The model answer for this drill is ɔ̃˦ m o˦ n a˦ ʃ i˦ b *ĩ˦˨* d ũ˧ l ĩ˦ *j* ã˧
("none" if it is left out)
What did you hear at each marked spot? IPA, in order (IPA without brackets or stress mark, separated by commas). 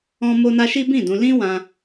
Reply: ĩ˦˨, w